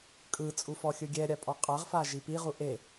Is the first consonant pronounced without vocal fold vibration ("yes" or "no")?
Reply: yes